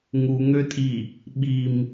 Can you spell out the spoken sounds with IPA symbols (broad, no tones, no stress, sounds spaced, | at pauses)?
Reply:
ŋ u ŋ ø tʼ i | ɓ i m